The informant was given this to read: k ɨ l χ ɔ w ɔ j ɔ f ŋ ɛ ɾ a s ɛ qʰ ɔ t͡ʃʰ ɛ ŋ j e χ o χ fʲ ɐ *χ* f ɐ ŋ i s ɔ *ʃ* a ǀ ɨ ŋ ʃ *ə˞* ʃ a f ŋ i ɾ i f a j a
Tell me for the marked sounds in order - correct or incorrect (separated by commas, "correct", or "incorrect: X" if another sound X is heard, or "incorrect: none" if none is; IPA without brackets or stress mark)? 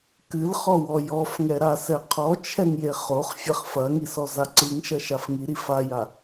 correct, incorrect: z, incorrect: ɐ